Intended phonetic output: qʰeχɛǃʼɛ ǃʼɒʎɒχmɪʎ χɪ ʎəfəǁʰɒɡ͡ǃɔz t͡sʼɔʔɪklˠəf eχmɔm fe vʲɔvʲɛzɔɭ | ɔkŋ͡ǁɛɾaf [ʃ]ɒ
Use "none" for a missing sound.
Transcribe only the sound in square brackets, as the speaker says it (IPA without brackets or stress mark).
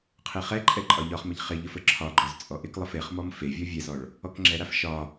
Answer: ʃ